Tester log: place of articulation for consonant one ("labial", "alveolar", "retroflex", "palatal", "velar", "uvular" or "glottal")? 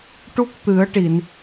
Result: retroflex